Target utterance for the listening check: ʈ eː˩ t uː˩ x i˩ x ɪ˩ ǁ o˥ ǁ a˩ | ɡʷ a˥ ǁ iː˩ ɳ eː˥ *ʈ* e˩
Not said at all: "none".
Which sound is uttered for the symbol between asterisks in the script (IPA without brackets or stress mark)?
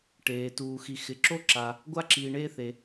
θ